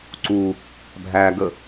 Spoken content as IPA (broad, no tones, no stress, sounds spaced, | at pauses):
ǀ u | bʱ æ ɡ ə